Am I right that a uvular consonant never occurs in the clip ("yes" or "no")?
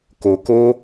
yes